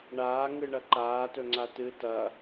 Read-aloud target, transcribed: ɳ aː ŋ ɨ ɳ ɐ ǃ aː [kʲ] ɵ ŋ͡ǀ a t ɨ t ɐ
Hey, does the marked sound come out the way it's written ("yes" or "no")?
no